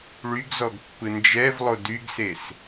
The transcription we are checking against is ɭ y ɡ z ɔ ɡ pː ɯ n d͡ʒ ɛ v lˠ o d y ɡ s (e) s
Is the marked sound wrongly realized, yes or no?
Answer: no